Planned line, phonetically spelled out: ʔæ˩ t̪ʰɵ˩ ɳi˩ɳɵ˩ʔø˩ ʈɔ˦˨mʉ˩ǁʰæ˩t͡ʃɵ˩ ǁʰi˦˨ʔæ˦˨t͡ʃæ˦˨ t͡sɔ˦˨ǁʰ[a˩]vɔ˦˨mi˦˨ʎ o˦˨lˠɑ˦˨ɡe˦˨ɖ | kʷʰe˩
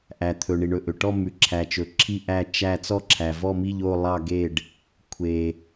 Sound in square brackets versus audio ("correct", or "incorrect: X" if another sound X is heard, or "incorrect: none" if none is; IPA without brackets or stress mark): incorrect: æ˩